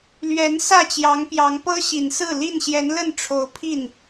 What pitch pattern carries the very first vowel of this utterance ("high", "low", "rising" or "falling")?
rising